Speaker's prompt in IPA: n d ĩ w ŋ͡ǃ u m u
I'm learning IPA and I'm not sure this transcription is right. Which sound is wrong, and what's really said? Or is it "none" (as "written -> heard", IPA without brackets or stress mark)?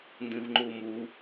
w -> v